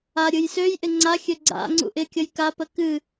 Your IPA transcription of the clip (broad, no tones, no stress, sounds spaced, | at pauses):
a ɾʲ ɨ j s ø j ʔ ɪ ŋ͡ǀ a xʲ ø ɡ͡ǀ a̰ ŋ͡ǀ ṵ ʔ ɪ kʲ ə j k a p ə k ɨ